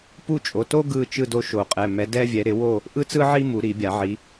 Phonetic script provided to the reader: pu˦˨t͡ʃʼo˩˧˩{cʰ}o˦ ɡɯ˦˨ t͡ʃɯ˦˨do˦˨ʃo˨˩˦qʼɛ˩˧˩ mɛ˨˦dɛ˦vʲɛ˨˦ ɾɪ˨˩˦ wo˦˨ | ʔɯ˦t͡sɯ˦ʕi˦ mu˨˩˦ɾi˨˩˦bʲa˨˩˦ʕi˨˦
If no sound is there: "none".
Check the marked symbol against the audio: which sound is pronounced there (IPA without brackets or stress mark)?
t